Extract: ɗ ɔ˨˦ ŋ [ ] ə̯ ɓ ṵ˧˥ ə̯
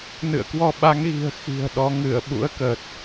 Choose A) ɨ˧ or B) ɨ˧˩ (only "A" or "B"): B